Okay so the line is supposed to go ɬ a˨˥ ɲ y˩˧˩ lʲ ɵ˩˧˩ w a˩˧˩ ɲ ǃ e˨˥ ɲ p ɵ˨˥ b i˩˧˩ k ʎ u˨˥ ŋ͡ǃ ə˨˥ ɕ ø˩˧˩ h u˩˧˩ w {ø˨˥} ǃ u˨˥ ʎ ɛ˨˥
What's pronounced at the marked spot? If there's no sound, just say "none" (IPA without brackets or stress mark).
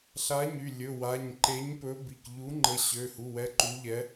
ɛ˨˥